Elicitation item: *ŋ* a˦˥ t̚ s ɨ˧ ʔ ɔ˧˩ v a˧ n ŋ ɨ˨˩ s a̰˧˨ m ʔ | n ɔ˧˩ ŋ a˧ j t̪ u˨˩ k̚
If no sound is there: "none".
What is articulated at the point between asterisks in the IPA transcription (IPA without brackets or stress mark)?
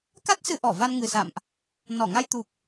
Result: k